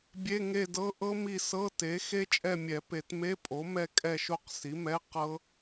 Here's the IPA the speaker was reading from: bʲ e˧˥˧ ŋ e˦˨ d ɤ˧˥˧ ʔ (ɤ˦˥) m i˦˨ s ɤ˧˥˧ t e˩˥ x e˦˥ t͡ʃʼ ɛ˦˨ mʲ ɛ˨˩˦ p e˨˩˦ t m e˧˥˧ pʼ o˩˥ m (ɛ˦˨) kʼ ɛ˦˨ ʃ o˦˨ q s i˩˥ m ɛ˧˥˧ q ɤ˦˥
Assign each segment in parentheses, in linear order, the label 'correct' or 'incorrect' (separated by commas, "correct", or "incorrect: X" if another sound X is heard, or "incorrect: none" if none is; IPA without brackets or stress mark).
correct, correct